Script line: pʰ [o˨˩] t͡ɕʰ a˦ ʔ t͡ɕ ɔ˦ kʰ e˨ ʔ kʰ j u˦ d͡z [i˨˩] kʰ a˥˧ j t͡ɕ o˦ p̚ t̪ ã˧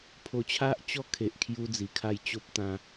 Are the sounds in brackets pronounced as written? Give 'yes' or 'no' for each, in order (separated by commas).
no, yes